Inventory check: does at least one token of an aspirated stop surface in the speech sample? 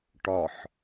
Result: no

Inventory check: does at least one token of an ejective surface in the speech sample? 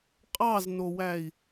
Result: yes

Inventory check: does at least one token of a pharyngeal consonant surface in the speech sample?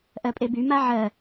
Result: yes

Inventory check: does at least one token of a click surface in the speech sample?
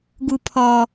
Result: no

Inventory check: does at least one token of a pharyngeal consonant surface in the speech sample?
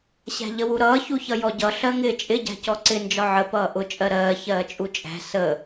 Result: yes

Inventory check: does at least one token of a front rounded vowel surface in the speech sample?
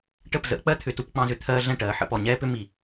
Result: yes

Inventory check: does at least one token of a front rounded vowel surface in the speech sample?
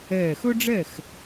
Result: no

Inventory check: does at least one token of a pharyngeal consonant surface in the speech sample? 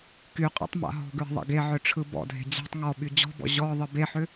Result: yes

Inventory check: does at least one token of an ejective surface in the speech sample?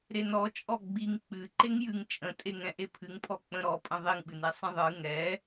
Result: yes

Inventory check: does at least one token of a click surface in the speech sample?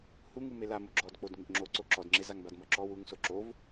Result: yes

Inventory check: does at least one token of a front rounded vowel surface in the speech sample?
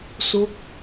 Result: no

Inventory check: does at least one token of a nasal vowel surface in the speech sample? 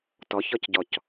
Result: no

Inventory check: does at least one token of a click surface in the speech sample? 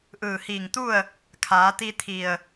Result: no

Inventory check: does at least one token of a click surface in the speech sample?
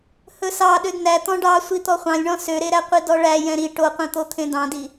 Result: no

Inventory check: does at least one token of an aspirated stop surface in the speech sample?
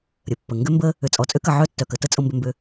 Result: no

